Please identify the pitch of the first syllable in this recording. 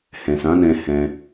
low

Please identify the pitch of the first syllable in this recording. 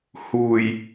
low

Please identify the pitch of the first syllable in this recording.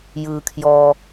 low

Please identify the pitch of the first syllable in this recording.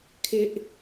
high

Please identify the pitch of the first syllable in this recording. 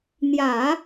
low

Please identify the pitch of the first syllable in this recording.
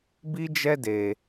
high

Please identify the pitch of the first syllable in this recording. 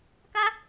high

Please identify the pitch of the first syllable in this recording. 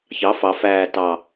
rising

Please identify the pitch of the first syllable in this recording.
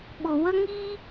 low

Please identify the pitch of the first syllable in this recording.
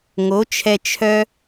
rising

